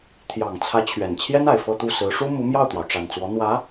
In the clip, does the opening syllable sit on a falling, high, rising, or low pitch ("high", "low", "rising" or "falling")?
low